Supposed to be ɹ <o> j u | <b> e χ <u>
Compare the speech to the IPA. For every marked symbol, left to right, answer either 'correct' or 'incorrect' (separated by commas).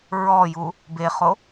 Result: incorrect, correct, incorrect